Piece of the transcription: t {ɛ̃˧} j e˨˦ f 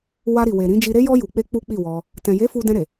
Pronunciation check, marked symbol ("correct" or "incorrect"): incorrect